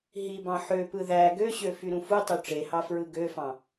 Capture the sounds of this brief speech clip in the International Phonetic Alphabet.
ɦibɑ̃ ħøpɯ ðæ ɡøɕø fyɾũfutˤø ʈ͡ʂehɑ fɹɯɡøfɑ̃

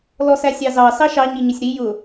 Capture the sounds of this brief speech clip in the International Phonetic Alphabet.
lɔsæsʲɑzɑ sɑʃɑ ɲiɲʊsʲɾi jʊ

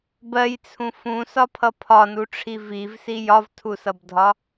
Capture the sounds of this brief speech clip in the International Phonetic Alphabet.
bɜjt͡sʰũ fũsɒpʰʌ pʰɒnuʈ͡ʂʰi vivsi jɒvtʰusʌbdʱɒ

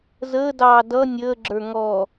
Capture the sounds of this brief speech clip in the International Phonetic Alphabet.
zəːdɑː dʌ nʲəːɡ͡ǁə˞ ŋɔ

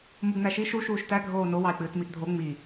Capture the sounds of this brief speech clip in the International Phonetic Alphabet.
muɡnæʃi ʃu ʃuːʃtæ ɡʱoːno wɑe̯k͡pɨːtmiʔdʱo ŋ͡mi

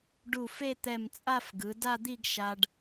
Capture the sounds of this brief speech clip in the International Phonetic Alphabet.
ɖu˧˩fe˥˧ t̪ɛ˧˩mt͡sʼa˥˧fɡɯ˩˧ da˥˧d̪i˥˧ɡ ʃa˧ɖ

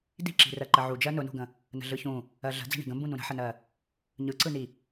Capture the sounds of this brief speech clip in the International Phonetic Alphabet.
di̤ǁi̤rɜ ǃəʕud͡ʒɜ nʊnṳɡə̃ | nə̤ɮɯçũ | ɜɮə̤d͡zə̤ ɳi̤ɡə̃mbũnũ ɾə̤ħənɜ | ɲɯǀɯni

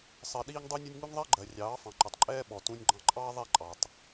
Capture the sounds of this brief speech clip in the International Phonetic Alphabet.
sˤɜ˧ɗiː˦ŋdˤu˦nʲʊ˦nʲ ŋu˦ŋðˤɜ˦ɡ͡ǃɜ˨ rʲɑː˨˦fɑ̃˨ǃʊ˨tˤǃʼɛː˦ ɓɔ˨tũ˧nʲɡ͡ǃɑ̃˧ǃʼɑː˦ ðˤɛ˦˨ǃʼɑ˨tˤ

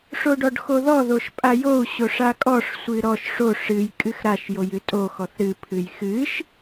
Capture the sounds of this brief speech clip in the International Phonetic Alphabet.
ʂoɖɔɖxoðɔ ðoʃpʼajou̯ ɕoʂakʼɔʂ sʷɨɾɔʃ ʂo ʂɨj kʼɨxɾaʃ jojɨtʼo xɔθɾɨ pʰɨjxɨʃ

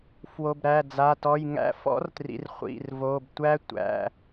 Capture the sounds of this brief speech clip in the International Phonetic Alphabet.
fwo˩˧˩bɾæ˩˧˩d͡za˩˧˩ tɔ˩˧˩jŋæ̰˦˥ fɔ̰˦˥rtrḭ˩˧˩r χʷḭ˩˧˩r vo˩˧˩btʷæ˦˥ tʷæ̰˩˧˩

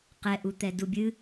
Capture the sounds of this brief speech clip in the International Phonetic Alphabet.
qɛʔu t̪ɛdubʲɨ

